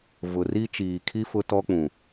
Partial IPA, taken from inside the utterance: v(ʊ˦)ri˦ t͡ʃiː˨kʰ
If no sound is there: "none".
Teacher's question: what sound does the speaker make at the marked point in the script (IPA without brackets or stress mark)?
ʊ˨